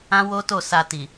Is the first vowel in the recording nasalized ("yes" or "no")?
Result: yes